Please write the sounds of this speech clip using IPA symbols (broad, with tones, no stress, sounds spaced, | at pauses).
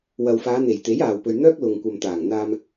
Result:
w ɐ˨ w f aː˨˧ n̪ e˨˩ j t̪ e˨˥ j aː˨ w p ɵ˨ ɥ n̪ œː˥ k̚ l ʊ˨ ŋ kʷ ɐ˨ m t̪ aː˨˩ ŋ n̪ aː˧ m